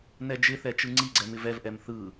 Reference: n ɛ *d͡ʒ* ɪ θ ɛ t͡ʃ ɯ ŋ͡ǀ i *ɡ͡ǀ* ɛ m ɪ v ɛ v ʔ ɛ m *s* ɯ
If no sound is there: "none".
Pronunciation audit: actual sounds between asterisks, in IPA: d͡ʒ, ɡ͡ǀ, θ

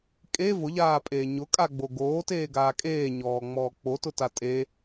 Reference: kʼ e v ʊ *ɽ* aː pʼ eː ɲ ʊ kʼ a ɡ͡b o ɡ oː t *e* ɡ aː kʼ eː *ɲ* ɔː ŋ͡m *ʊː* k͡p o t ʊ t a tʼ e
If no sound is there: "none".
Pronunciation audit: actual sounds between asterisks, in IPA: ʎ, eː, ɲ, ɔː

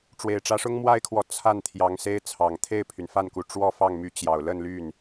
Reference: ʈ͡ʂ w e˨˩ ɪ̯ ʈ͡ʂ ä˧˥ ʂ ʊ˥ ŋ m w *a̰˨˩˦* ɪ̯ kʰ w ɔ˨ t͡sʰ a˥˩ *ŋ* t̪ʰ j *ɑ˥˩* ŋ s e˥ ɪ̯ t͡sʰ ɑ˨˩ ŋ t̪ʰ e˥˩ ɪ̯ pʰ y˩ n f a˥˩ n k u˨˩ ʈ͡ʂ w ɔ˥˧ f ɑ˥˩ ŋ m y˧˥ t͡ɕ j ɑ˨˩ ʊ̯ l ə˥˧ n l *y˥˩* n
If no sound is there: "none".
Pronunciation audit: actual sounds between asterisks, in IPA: a˥, n, ɑ˧˥, y˥˩

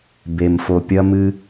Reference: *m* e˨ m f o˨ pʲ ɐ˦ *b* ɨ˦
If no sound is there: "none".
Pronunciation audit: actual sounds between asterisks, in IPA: b, m

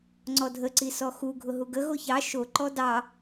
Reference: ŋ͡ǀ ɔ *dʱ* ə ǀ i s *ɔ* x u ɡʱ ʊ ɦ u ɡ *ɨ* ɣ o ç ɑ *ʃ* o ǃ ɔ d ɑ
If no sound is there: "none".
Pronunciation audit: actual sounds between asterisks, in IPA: dʱ, ɔ, ə, ʃ

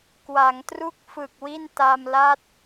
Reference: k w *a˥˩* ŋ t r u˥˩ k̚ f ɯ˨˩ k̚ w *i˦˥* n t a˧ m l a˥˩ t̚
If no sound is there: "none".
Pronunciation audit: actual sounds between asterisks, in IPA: a˩˦, i˥˩

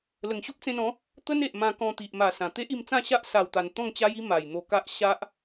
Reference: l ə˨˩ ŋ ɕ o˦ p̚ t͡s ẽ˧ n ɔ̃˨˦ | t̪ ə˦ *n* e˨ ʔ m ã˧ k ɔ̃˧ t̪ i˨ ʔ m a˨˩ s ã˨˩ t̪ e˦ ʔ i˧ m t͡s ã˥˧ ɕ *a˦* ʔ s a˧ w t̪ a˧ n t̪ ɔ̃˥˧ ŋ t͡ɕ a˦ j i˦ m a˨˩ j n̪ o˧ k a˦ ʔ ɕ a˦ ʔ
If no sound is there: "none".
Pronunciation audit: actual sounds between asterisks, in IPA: n, a˦

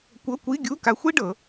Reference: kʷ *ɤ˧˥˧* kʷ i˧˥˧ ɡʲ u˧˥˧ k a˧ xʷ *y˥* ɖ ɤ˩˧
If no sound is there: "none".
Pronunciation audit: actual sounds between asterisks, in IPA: ɤ˧˥˧, i˥

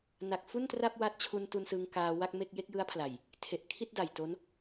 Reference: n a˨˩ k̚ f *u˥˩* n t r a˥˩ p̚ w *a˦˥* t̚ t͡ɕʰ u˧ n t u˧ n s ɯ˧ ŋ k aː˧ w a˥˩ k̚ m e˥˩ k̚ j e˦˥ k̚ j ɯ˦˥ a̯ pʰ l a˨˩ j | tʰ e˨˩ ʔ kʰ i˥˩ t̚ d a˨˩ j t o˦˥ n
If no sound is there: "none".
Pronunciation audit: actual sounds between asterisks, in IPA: u˥˩, a˦˥

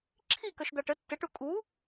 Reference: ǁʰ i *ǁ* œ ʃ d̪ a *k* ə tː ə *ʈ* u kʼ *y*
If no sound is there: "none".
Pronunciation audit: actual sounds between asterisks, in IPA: k, ʈ, ʈ, u

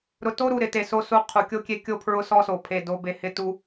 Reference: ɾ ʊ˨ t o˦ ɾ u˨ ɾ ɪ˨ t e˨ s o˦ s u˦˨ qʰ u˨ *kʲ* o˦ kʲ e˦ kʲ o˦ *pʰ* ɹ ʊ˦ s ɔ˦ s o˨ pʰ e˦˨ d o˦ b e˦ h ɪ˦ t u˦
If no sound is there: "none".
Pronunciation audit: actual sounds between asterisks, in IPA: kʲ, pʰ

